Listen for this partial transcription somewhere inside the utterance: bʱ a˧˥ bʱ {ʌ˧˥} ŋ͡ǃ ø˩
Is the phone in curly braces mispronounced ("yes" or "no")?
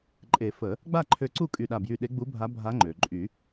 yes